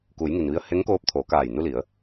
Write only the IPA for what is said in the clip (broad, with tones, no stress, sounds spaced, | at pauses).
k u˩˧ j ŋ i˩ n ʋ i˧ ə̯ h e˧˥ ŋ k oː˧˥ p̚ t̪ʰ oː˩˧ k aː˧˩ j n u˧ l i˩˧ ə̯